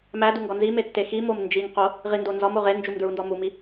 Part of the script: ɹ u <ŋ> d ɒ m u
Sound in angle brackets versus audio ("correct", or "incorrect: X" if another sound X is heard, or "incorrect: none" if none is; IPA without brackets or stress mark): incorrect: n